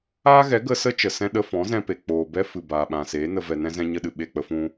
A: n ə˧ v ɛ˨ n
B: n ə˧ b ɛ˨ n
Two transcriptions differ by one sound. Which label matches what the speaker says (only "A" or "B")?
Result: A